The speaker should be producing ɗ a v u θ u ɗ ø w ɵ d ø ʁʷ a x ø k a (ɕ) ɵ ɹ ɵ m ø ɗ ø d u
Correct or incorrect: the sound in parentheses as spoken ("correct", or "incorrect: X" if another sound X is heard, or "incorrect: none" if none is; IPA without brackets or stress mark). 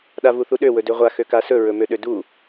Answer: incorrect: s